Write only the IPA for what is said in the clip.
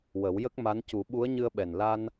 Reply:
w ə˨˩˦ w j ə˦˥ k̚ m a˧˥ n c u˨˩˦ ɓ u˧˥ ə̯ ɲ ɨ˧ ə̯ ɓ ɛ˨˩ n l a˧ n

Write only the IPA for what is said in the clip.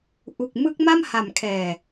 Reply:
ʔ u˨˩ k̚ m ɯ˦˥ k̚ m a˥˩ m h a˨˩ m kʰ ɛː˨˩

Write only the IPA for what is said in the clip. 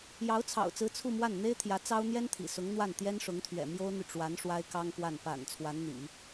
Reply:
j ɑ˧˥ ʊ̯ t͡sʰ ɑ̰˨˩ ʊ̯ t͡s ɹ̩˧˥ t͡sʰ u˥˧ m w a˥˩ n n̪ e˥ ɪ̯ t̪ʰ j ä˧˥ t͡s ɑ˥ ʊ̯ n̪ j ɛ˥ n t̪ʰ ḭ˨˩ s ʊ˧˥ ŋ n̪ w a˥˩ n t̪ j ɛ˥ n ʂ ʊ˧˥ ŋ t̪ʰ ɥ ɛ̰˨˩ m j o˥ ʊ̯ n̪ y˨ ʈ͡ʂ w a˧˥ n ʂ w a˥ ɪ̯ k ɑ˥ ŋ k w a˥˩ n p a̰˨˩ n t͡sʰ w a˧˥ n n̪ ḭ˨˩˦

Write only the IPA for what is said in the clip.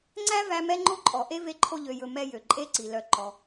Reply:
ŋ͡ǀ æ˥ v æ˦ m ɛ˥ ŋ͡ǃ o˥ ǃʼ ɔ˩ ʔ e˥ v e˦ ǃʰ o˦ ʎ ø˨ j ɵ˨ m ɛ˦ j ø˩ ǃʼ e˥ ǀ i˩ l œ˨ ǃ ɔ˩

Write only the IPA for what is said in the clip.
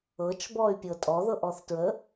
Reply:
ɤ t͡ʃ b ɔ y̯ pʲ ɤ tʼ ɔ ð ɤ ʔ ɔ θ t ɹ ə

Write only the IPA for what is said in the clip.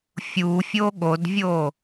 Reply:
fʲ u fʲ o ɠ o d vʲ o

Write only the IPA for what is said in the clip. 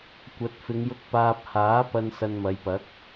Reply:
kʷ ɐ˨˥ t̚ f ɪ˨˧ ŋ j ʊ˧ k̚ p aː˧ p̚ h aː˨˥ p ɐ˧ n s ɐ˧ n m ɐ˨˧ j p ɐ˨˥ k̚

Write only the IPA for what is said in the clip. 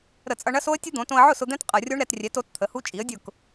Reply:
ɾ ə˧˩˧ t͡sʼ ʌ˧ ɳ ɐ˦˥ s o˦˥ ə̯ tʲ ə˦˥ d̪ õ˩˧ t õ˧ ə̯ ʕ ʊ˥˩ s ʊ˧ d̪ ɛ̃˦˥ t qʼ ɐ˧˩˧ rʲ o˦˥ ɳ ɾ ɛ˩˧ t rʲ ɛ˩˥ t o˩˥ t t̪ʰ ə˩˧ h u˦˥ t͡ʃʼ i˩˥ ə̯ dʲ ʊ˥˩ k

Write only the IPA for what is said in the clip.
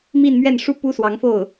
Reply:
m i˥˧ n m ɥ ɛ˥˩ n ʂ u˥ p u˥ s w ɑ˧˥ ŋ f o˥˩ ʊ̯

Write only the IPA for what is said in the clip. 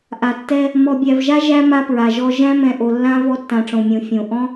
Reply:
ʔ a˨ tː ɛ˦ | m ɔ˨ bʲ æ˨ v ʒ a˦ ʒ æ˦ m a˦ p ɹ a˨ ʒ ɔ˦ ʒ æ̃˦ m ɛ̃˨ ʔ o˨ lː ã˦ v ɔ˦ tː ã˨ ʈ͡ʂ õ˨ mʲ õ˨ fʲ õ˨ ʔ ɔ̃˦

